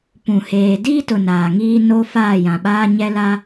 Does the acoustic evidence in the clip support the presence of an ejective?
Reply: no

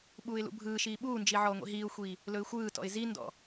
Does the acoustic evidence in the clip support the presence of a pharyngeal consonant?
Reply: yes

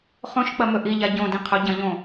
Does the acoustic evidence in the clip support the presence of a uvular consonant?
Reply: yes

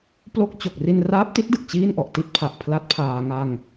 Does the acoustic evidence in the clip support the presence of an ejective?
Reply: no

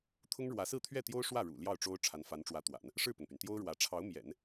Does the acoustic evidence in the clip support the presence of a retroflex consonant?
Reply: yes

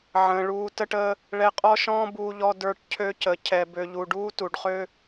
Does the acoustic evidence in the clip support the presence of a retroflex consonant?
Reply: yes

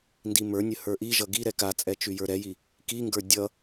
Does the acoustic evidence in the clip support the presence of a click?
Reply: no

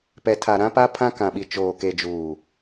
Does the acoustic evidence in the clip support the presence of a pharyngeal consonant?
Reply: no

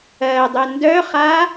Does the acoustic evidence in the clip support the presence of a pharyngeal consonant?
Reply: no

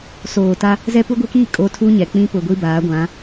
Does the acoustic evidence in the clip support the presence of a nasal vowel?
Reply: yes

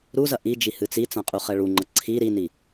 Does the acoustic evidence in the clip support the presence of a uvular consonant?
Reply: yes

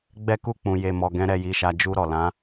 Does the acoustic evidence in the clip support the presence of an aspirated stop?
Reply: no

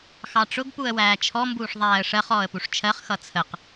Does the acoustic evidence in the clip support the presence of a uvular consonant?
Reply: yes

